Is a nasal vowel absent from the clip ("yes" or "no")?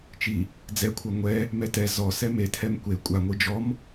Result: yes